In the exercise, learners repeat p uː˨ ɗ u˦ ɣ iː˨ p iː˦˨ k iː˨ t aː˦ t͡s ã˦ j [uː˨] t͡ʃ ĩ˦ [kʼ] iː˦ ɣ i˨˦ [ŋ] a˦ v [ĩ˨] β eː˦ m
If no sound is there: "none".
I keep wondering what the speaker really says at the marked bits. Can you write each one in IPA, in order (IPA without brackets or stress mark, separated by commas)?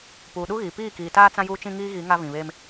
uː˦, ŋ, ŋ, ĩ˨